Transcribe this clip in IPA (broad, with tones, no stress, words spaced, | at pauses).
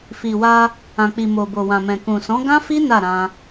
fi˨wa˧ | ã˨k͡pi˨mo˨ bo˨wã˨mɛ̃˨ kũ˨sɔ̃˨˦ɡã˦fi˦ na˦˨ ɾã˧